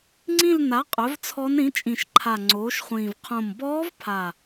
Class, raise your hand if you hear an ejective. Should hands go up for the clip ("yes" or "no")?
yes